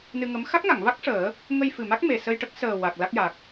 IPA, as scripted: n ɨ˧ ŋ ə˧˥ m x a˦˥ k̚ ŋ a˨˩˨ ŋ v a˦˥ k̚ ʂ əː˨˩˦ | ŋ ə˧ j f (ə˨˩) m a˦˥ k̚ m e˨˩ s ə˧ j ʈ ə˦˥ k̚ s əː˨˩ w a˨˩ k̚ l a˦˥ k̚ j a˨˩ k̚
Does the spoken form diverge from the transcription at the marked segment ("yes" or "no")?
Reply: yes